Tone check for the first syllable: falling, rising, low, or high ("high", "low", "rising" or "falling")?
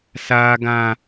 high